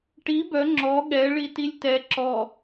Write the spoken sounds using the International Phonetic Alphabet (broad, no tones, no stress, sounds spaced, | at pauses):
ʈ i b œ ŋ͡ǁ ɔ ɠ ɛ ɭ i t i lʲ t ɛ ǁ ɔ